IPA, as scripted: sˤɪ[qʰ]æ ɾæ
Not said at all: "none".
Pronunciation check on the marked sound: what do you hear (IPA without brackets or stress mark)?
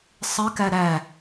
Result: k